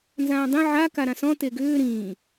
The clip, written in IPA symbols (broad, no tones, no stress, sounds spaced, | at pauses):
n z ãː dˤ ẽ ʕ a k a ɾ ã s ɔ̃ t e ɡ ʏː ɾ ĩː